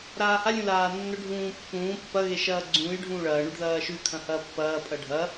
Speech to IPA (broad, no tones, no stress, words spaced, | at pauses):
ɾaːha lʲũlaːnːɵ ɖʱũːpːũː pːɐ ɣeʃɐːɡ͡ǀũːj ɖʱũːɭɐː ɳʉɖðɐːʃʉ kʰɐ̃hɐːpːɐː pʼɐɖʱɐ